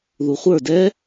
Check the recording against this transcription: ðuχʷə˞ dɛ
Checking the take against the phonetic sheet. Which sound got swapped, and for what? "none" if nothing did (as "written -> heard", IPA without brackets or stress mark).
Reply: none